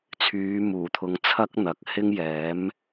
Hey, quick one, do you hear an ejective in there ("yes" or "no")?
no